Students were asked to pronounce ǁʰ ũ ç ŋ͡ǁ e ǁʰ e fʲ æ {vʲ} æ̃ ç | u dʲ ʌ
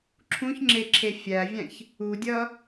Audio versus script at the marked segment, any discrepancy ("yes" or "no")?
no